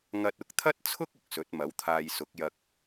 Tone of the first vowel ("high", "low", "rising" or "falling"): low